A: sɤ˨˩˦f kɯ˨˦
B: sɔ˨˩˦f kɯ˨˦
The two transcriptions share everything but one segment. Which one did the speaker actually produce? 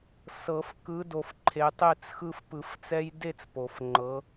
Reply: A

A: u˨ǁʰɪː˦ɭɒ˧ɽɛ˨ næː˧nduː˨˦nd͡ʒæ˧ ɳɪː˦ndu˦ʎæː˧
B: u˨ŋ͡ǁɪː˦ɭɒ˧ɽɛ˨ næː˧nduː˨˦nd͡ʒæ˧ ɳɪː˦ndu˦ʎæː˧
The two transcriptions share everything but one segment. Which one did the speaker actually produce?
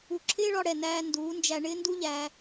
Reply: A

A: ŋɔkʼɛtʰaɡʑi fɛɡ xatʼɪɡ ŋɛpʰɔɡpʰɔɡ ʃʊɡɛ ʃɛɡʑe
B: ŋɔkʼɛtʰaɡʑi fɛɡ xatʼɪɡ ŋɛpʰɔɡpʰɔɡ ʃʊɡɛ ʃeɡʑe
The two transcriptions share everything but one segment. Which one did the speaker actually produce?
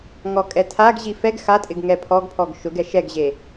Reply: A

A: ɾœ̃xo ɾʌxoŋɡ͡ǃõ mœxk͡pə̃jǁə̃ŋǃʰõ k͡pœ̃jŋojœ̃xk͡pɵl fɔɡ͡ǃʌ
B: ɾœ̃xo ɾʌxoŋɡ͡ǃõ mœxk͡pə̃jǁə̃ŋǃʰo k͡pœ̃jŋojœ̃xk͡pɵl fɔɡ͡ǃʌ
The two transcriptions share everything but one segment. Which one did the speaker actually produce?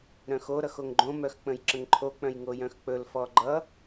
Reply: B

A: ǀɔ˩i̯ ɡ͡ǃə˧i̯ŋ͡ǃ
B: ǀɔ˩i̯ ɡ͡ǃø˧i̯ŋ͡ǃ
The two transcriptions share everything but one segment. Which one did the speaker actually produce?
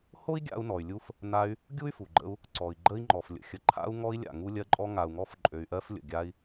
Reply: A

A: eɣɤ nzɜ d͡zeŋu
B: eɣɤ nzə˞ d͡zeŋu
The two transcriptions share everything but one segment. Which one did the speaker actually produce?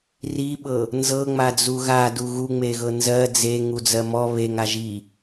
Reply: A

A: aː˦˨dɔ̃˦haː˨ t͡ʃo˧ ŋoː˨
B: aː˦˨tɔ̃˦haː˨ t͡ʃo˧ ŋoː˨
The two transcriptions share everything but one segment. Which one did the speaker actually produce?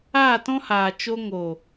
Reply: B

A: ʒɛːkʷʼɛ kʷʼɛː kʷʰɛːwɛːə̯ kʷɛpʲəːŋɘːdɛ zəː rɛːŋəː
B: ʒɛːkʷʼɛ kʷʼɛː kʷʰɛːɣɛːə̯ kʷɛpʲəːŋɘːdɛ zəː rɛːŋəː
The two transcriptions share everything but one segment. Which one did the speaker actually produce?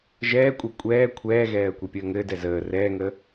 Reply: B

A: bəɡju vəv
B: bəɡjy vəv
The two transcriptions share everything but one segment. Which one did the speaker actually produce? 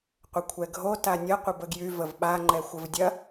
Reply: B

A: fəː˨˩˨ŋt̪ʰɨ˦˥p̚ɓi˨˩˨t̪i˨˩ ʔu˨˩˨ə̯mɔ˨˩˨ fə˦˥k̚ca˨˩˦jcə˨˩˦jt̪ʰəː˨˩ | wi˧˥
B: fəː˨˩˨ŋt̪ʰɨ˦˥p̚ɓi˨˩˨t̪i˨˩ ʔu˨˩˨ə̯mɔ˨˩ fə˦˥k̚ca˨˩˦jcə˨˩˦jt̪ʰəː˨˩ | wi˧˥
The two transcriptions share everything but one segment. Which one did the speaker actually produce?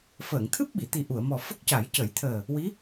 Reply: B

